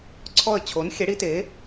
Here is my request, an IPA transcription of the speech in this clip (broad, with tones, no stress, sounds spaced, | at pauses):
ǀʰ ɔ˥˨ ə̯ t͡ɕʰ o˨˥ n xʲ ɛ˨˥ ɽ i˨˥ t e˨˥